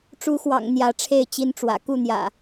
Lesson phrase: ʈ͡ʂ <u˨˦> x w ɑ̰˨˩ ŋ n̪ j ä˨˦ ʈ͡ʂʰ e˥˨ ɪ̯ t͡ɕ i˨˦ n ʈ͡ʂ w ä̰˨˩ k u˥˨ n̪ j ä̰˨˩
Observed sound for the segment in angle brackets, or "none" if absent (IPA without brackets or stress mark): u˨˦